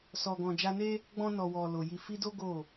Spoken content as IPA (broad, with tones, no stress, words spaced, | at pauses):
sɔ˨ɡɔ̃˨d͡ʒa˧ne˦ | ɡ͡bɔ̃˧nɔ˨wɔ˨ lo˨ ji˨fi˧do˦ ɡo˦˨